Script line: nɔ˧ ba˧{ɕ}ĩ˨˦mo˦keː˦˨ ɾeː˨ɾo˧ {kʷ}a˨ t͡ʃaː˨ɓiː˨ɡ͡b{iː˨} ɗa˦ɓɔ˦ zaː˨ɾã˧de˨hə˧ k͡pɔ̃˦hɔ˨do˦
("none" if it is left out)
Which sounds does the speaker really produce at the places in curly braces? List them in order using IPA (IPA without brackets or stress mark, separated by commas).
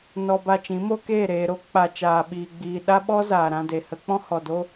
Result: t͡ʃ, k͡p, iː˨